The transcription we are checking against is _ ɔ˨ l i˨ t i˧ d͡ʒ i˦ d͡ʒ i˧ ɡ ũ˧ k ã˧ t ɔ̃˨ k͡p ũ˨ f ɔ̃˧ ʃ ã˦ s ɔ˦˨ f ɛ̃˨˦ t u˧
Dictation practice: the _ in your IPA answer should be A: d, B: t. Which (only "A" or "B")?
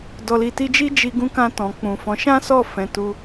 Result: A